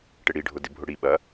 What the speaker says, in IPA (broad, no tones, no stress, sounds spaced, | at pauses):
ʈ ɪ ɽ i ɖʱ ʊ d ɪ bʱ ʊ ɽ i ɓ ɐ